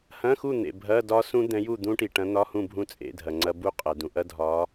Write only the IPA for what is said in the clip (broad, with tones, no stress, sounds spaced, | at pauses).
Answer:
h ɐ̃˧˥˧ x u˥˨ n̪ ḛ˩ bʱ ɐ˧˥˧ d ɒ˦˥ s ũ˦˥ d̪ ɛ̃˨˦ j u˥˨ d̪ ũ˦˥ ʈ i˩ ʈ ɐ̃˨˦ n̪ ɒ˧˥˧ h ũ˥˨ bʱ ũ˦˥ t͡sʼ ḛ˧˥˧ dʱ ɐ˩ ŋ͡ǀ ɐ˦˥ b u˦˥ qʼ ɐ˩ d ũ˩ ʔ ɐ˦˥ dʱ ɒ˨˦